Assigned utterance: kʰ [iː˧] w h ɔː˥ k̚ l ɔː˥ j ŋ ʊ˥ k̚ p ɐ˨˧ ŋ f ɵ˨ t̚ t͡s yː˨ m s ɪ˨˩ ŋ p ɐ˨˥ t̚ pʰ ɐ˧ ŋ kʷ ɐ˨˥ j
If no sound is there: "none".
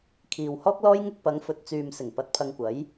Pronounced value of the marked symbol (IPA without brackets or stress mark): iː˨